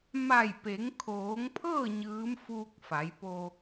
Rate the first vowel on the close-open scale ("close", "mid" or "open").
open